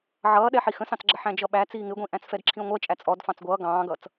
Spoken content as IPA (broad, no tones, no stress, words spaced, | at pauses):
ʕʌːɗɛ ħixə̃sɑ̃t͡sɡ͡ǁʌ ħæ̃d͡ʒʌɓæ t͡siːŋɪɡʷĩʔæ̃t͡s fɛdǁʰĩə̯ŋʷɜt͡ʃʼæ t͡sʼɔd fɑ̃t͡sɡʷʌː ɡɑ̃ːɡʌt͡s